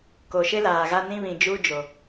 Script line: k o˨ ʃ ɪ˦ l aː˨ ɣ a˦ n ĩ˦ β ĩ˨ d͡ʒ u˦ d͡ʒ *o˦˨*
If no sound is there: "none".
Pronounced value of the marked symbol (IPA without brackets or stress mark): o˨